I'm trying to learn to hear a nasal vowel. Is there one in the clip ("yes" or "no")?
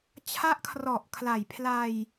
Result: no